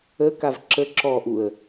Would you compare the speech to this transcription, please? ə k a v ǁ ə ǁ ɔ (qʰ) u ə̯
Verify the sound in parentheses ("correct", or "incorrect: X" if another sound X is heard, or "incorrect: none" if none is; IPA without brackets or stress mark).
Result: incorrect: ʔ